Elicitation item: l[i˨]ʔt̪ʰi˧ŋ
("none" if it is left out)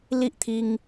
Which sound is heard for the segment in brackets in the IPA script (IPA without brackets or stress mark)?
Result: i˦